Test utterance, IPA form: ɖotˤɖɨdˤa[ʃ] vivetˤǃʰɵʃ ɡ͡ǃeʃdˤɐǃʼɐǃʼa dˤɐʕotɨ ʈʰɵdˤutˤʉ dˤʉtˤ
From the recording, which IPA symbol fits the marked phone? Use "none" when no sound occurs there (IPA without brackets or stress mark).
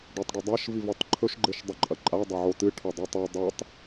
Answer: ʃ